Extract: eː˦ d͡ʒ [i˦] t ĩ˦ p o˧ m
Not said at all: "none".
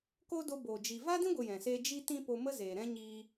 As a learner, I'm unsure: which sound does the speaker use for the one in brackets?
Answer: i˦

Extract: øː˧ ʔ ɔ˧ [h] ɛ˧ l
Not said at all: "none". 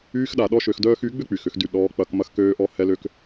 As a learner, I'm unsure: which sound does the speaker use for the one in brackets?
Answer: h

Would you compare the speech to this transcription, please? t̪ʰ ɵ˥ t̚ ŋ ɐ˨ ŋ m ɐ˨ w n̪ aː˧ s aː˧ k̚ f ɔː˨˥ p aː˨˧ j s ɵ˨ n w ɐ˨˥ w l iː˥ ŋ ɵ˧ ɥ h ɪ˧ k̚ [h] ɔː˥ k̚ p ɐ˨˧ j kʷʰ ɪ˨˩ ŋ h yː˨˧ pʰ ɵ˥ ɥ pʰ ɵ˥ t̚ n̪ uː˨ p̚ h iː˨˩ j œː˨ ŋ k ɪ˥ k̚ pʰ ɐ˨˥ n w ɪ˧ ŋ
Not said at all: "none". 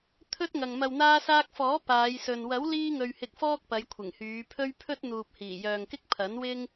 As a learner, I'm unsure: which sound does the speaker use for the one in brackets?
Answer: f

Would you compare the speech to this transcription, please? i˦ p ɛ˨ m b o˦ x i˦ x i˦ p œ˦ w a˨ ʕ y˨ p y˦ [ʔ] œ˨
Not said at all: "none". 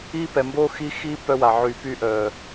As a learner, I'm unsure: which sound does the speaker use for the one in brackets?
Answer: ʔ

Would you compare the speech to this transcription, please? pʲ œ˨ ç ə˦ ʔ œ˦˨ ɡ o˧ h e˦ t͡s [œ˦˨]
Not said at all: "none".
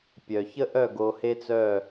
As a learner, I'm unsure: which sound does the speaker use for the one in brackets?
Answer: œ˦˨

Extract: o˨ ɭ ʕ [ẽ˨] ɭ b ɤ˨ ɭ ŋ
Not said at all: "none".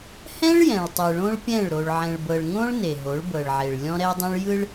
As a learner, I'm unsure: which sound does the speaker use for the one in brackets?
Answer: ɛ̃˨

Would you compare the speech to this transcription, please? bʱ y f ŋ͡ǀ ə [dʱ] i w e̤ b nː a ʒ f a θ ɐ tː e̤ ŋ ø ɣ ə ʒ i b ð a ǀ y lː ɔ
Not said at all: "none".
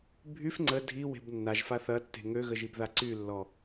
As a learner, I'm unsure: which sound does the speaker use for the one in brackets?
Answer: dʱ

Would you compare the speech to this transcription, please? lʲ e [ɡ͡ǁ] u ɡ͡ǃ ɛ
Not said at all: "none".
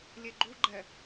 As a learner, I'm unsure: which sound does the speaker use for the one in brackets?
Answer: ɡ͡ǃ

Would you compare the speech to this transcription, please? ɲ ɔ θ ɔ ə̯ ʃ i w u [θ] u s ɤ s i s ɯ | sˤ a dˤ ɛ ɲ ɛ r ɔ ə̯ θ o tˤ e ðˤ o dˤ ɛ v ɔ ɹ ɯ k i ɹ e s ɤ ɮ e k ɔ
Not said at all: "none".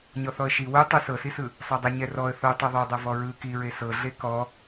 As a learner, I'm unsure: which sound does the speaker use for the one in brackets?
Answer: tˤ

